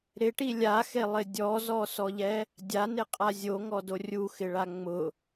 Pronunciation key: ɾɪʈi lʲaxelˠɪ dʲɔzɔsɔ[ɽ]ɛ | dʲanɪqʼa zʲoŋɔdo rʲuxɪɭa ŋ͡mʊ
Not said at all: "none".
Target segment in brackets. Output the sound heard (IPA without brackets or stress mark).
ʎ